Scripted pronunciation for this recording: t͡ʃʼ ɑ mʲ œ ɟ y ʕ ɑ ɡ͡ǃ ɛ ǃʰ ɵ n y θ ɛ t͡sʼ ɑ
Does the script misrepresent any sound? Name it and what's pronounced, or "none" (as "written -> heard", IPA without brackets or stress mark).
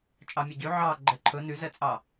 θ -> z